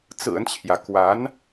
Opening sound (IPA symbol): t͡s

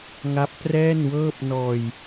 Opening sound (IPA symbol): ŋ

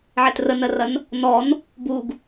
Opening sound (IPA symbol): ʕ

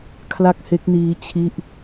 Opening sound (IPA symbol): kʰ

